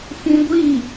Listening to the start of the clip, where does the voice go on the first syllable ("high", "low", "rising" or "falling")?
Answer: high